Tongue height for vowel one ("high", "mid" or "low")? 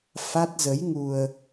low